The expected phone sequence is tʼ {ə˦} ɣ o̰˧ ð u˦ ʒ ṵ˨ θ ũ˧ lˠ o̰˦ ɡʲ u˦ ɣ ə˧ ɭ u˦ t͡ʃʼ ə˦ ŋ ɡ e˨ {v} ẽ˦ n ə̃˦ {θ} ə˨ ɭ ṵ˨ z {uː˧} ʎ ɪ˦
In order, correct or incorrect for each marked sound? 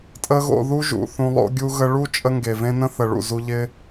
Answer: correct, correct, correct, incorrect: u˧

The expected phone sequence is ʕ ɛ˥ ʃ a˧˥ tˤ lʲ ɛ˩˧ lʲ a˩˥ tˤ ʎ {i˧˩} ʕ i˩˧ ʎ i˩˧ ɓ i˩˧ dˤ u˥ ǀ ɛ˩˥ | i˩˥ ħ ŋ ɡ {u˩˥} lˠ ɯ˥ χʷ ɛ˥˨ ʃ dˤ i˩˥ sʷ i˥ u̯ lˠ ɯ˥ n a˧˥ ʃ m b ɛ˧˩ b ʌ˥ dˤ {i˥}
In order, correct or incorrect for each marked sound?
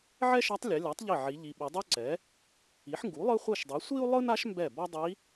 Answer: correct, correct, incorrect: i˧˥

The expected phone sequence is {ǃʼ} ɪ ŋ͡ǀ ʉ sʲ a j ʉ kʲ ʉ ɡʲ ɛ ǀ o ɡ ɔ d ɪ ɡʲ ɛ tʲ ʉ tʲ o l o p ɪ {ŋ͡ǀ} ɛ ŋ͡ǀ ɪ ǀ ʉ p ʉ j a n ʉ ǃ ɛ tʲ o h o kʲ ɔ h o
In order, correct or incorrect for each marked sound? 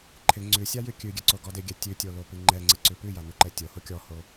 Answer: incorrect: ǃʰ, incorrect: ŋ͡ǃ

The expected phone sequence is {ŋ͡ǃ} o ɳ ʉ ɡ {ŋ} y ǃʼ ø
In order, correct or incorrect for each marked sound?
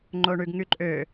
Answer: correct, correct

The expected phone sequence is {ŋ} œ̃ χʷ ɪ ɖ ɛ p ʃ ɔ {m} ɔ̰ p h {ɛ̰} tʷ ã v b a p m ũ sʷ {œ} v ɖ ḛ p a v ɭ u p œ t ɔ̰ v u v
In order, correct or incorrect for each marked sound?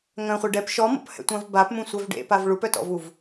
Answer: correct, correct, correct, correct

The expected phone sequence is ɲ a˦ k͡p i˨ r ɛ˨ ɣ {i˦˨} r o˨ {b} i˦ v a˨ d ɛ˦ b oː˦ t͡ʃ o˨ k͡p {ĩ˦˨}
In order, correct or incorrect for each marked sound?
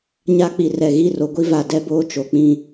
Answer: correct, incorrect: ɡʷ, correct

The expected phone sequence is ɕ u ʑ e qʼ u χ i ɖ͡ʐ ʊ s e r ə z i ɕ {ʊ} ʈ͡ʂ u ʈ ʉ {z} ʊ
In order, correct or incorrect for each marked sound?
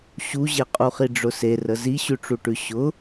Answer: incorrect: ʉ, incorrect: ɕ

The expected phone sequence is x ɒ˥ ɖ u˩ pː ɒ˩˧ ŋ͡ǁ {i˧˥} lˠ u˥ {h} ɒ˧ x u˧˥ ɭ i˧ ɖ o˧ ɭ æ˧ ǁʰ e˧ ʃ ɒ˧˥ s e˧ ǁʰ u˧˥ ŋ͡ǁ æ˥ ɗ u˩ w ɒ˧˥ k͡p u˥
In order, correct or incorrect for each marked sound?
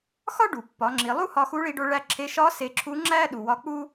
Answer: incorrect: i˩˧, correct

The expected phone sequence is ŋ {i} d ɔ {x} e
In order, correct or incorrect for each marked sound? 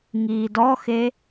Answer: incorrect: iː, correct

